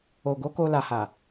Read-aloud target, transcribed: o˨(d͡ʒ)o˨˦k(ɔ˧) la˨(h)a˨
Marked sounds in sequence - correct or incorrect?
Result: incorrect, incorrect, correct

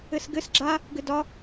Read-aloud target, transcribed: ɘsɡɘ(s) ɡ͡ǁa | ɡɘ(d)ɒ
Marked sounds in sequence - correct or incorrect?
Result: correct, correct

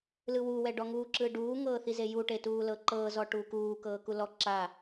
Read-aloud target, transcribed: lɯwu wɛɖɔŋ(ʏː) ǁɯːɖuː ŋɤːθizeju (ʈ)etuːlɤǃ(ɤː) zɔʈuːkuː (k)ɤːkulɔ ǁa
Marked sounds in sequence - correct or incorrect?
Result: incorrect, correct, correct, correct

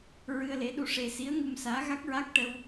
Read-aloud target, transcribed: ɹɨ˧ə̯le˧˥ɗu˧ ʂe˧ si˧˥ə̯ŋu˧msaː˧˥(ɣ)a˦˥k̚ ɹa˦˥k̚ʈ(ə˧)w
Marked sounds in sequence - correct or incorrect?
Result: correct, correct

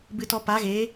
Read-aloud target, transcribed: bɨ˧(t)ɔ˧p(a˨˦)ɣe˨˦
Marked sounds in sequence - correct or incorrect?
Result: correct, correct

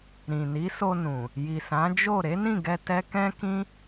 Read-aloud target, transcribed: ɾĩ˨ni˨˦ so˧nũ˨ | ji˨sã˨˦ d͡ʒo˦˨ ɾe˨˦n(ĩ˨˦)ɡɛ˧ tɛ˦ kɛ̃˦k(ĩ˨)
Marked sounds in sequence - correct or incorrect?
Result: incorrect, incorrect

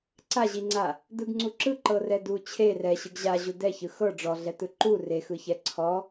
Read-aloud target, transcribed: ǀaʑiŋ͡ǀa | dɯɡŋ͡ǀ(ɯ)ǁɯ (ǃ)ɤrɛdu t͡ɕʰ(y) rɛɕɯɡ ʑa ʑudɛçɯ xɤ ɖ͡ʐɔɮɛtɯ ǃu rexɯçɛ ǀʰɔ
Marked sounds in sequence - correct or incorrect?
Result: incorrect, correct, incorrect

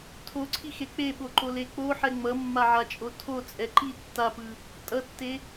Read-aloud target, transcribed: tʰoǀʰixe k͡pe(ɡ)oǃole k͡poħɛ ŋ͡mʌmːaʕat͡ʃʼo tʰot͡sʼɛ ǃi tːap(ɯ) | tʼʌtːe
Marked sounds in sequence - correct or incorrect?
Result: incorrect, correct

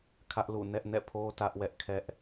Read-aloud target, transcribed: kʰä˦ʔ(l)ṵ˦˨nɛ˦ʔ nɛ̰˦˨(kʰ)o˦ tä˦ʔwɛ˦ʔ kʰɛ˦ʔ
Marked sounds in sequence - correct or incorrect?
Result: correct, incorrect

